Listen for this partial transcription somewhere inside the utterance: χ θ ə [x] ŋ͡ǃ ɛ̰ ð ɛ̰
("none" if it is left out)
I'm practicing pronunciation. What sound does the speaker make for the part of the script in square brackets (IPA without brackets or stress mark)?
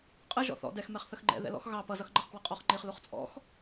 x